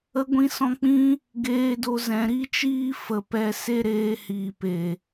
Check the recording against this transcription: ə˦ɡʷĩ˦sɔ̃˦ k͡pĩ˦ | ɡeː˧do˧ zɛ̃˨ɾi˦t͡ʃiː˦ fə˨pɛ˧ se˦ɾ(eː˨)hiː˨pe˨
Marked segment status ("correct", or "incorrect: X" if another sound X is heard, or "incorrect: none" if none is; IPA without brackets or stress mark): incorrect: eː˧